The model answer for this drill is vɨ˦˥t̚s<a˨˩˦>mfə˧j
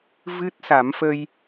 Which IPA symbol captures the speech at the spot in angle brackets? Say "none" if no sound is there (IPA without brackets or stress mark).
a˨˩˦